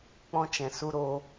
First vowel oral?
no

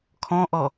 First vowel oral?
no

